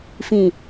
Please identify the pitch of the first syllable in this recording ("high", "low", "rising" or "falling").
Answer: low